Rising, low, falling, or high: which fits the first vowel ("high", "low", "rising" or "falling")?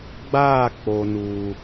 falling